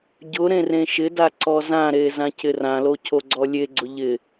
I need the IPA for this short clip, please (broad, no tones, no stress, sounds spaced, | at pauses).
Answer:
ɟ ʊ ɾ ẽ r ẽ ʃ ɪ d a ǀ ɔ z ã ɾ e z ã cʰ ɪ r ã l o cʰ o ɡ͡ǀ ɔ lʲ e ɡ͡ǀ ʊ ʎ ɪ